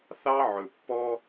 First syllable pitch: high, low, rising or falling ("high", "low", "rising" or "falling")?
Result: high